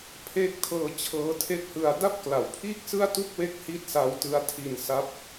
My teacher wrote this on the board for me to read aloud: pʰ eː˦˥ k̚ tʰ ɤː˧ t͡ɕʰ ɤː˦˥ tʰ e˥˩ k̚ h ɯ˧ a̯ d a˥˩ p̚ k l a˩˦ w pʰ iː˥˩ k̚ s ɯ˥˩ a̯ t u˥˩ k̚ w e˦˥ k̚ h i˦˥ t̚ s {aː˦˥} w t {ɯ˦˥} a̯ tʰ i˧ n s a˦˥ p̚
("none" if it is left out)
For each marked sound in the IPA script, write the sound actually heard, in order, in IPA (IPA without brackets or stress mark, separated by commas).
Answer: a˦˥, ɯ˦˥